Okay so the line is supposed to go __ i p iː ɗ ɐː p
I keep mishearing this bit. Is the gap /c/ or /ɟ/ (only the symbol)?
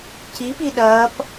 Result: c